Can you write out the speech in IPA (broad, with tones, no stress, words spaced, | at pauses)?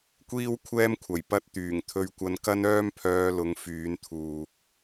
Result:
kʷiː˥wkʷʰɛː˥mkʷʰɐ˨˩j pɐ˧t̚t̪yː˨˩ŋ t̪ʰɵ˧ɥkʷɐ˧n kɐ˥nœː˥mpʰœː˧lʊ˨˧ŋ fyː˨˧nt̪ʰuː˨k̚